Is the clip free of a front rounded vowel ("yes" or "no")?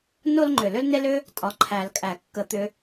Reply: no